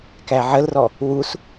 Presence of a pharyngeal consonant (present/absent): present